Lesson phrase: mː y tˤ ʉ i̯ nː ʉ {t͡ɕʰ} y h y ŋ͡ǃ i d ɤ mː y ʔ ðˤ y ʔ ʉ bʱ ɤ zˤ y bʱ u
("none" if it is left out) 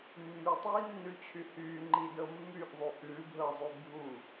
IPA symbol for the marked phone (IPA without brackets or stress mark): t͡ɕʰ